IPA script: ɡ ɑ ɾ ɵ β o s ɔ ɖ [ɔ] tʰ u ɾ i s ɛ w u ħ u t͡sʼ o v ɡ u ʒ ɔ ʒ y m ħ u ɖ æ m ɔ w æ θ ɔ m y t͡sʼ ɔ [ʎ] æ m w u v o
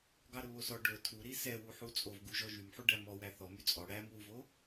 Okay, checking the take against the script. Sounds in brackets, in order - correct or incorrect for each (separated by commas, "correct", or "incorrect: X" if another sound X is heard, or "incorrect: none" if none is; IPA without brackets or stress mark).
incorrect: ɵ, incorrect: ɽ